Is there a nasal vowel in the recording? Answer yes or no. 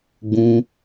yes